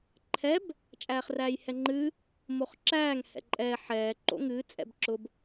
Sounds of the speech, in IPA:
ǃʰ ɛ b | t͡ʃʼ æː χ r æː j h ɛ ŋ͡ǃ ɨː | m o χ ǁ æː ŋ h ɛ̰ ǃʼ ɛː ħ ɛː ǃ o̰ ŋ ɨː t͡sʼ ɛ̰ b ǁ ʊ b

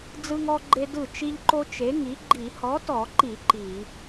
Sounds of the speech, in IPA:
d͡z ɯ˥ ŋ ɔ˥ ɡ͡ǃ e˥ d ɯ˥˩ t͡ʃ i˥ ʎ ǃ o˥ t͡ʃ e˨˥ ŋ i˨˥ ɡ͡ǃ i˧˩˧ h ɔ˨˥ t ɔ˧˩˧ ǃ i˧˩˧ ǃ i˧˩˧

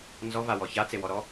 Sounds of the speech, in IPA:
n z ɔ v a w ɔ ç a t͡s e w ɔ ɾ ɔ

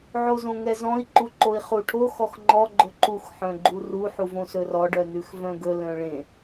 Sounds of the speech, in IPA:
ʕ o z õ ŋ ɛ z ɔ̃ i̯ ǃ u ǃ o i̯ χ u ʈʰ o x ɔ x ŋ͡ǃ ɔ ɡ͡ǃ ɵ ǃ u x ħ œ̃ ɡ͡ǃ u r u ħ u v õ s ɵ r ɔ ɖ œ n ʉ x v œ̃ ɡ ɵ l œ̃ ɭ ẽ

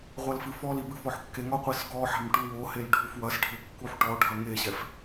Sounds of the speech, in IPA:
ʁʷ ɐ l f ɨ f ɔ l i b ɨ f ɔ ħ kː e ŋ ɔ qʷ i s ɡ ɔ ħ a̤ m ʈ u w o h e l ɖʱ u f w ɐ s ɖʱ ɘ kː u ħ ʈ ɔ ɖʱ ɐ ŋ e ɕ ɛ f

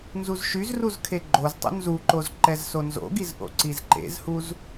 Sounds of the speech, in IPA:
n z u z ʃ y z r u z kʰ e ɡ͡ǃ o z tˤ o̰ n z u ǃ o z ǃ ɛ z s o n z o̰ ɡ i z ʔ o̰ ǀ i z ǃ ḛ z h u z

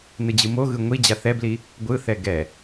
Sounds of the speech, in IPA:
n ɯ d͡ʑ ɯ m o ɣ ɯ ŋʷ i d͡ʑ a θ ɛ b l i | ɡʷ ɯ θ ɛ ɡ ɛ

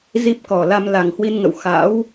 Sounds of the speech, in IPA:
z i˦˥ p̚ k ɔ˨˩ l a˧ m l a˨˩ ŋ h w i˧ n ŋ ə̰˧˨ w x a̰˧˥ w

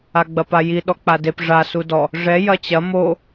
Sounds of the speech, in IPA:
a ɡ͡b ɐ p a j i ɗ ɔ k͡p a d e p ʐ a s u d ɔ | ʐ ɛ j ɐ t͡ɕ ɐ m o

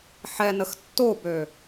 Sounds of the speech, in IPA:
ħ ɛ n ə x tː o b ø

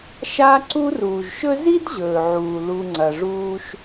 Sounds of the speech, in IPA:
ʃ aː˦ ǀ u˦ r uː˩ ʒ ʃ ɵ˥ z i˥ d ʑ ɵː˩ ʕ uː˩ l u˨ ŋ͡ǀ ɐ˩ ʐ uː˦ ʃ

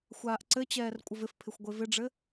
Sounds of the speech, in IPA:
xʷ aː ʔ ǀ ɘ t͡ɕ ɛː r kʷʼ ə v ɪ f pʰ ɪ xʷ ɡʷ e v ɪ ɖ͡ʐ ɘ

